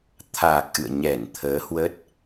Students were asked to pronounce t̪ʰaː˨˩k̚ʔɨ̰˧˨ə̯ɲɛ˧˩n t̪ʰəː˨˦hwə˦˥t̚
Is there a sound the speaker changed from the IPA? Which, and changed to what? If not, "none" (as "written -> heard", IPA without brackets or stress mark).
none